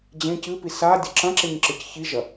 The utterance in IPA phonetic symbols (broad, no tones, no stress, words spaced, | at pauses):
d͡ʑẽ cɨpi sa dʲɐǁɐ̃ǁeɲ ǁɨcçiʒɐ